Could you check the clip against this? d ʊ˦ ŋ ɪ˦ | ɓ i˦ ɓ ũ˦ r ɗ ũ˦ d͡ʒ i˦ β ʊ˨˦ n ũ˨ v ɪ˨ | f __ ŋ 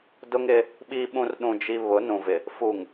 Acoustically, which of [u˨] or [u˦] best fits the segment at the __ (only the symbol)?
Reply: u˨